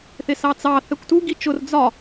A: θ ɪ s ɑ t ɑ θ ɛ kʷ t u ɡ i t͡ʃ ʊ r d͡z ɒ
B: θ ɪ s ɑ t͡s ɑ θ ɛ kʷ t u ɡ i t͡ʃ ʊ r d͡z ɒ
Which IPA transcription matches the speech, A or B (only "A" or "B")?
B